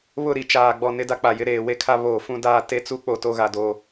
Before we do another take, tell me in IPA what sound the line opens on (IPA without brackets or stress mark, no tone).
β